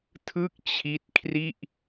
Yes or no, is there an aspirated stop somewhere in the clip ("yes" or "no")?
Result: yes